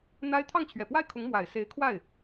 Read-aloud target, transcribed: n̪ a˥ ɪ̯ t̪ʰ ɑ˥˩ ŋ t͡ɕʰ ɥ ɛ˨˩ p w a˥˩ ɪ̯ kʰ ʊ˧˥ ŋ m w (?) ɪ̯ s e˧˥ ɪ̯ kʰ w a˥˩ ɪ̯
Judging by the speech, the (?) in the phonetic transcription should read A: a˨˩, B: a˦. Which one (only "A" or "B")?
A